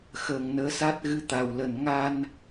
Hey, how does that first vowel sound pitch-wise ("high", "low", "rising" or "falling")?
low